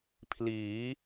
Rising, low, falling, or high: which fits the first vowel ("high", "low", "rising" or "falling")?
rising